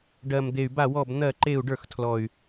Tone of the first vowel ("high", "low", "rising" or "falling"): low